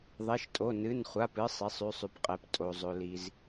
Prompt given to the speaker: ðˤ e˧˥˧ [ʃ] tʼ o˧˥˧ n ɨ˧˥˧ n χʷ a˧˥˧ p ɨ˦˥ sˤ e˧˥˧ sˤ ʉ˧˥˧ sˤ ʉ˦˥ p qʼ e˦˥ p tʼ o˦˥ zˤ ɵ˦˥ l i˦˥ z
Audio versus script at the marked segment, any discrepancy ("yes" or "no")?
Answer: no